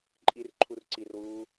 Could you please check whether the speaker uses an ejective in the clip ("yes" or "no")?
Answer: yes